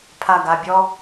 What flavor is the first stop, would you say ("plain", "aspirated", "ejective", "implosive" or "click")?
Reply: aspirated